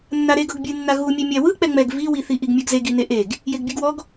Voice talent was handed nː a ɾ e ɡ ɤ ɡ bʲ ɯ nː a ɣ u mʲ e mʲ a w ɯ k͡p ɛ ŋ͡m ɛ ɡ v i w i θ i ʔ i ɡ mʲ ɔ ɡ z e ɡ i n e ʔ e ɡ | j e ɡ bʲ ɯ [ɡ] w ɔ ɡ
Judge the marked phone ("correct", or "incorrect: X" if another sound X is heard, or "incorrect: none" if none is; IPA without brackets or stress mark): correct